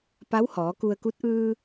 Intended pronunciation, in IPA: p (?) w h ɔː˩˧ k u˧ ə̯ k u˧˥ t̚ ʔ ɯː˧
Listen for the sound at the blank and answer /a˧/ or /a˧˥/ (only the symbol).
a˧˥